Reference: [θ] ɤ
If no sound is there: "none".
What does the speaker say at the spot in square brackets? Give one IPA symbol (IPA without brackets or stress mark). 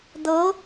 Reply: d̪